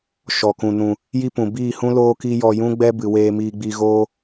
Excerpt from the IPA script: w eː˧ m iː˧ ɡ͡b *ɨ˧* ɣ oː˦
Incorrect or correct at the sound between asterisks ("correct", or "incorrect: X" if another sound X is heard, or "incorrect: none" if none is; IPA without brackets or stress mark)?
incorrect: i˧